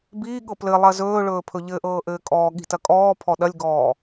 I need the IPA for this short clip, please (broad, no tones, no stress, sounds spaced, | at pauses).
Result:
b iː ɠ ɤ p l ɘ lˠ ɐ z ɵː ɭ ɵː pʰ ɵ ʎ ɘ ʔ ɤː ʔ ɘː kʼ ɔː ɠ i̤ t ɐ kʼ ɔː pʰ ɔ ɗ ɐ lʲ ɡ ɔː